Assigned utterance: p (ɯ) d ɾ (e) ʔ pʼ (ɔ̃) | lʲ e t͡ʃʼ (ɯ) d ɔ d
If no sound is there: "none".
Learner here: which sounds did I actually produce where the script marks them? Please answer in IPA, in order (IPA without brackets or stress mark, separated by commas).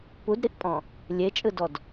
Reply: u, i, ɔ̃, ɯ